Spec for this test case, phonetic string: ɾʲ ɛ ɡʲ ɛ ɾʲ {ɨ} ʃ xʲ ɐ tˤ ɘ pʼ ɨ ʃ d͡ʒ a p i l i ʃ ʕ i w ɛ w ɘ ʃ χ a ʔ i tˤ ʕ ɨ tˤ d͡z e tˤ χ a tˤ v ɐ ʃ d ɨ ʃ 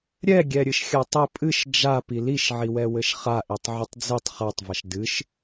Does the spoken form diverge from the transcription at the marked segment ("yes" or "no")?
no